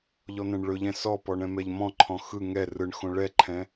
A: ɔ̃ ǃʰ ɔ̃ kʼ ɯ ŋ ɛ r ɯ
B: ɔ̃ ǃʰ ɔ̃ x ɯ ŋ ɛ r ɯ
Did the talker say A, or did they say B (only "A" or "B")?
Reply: B